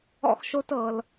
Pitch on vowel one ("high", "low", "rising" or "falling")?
high